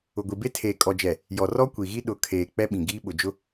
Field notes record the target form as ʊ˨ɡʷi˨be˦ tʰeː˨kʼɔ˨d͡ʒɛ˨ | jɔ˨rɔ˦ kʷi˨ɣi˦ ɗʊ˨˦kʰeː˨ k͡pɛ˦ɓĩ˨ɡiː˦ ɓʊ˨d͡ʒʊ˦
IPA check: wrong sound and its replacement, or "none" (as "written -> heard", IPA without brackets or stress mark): none